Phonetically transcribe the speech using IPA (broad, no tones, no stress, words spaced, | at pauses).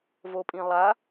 vopʼĩlˠa